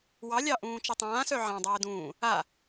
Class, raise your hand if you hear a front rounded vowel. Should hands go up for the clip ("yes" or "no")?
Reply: yes